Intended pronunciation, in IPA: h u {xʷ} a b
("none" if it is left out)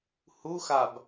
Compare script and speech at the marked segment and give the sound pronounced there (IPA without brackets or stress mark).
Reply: x